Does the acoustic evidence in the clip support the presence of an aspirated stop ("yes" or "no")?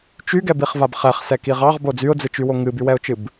no